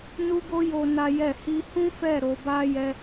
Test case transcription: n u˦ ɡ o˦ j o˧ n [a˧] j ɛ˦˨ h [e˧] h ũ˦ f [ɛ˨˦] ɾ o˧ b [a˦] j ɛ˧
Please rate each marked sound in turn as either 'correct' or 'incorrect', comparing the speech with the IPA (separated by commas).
incorrect, incorrect, incorrect, correct